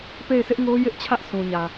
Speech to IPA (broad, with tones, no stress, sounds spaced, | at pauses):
p e˦˨ ɪ̯ sʰ ɪ˦ ʔ ŋ o˦ j ɪ˦ ʔ t͡ɕʰ ä˦ ʔ sʰ ũ˨ ɲ ä˨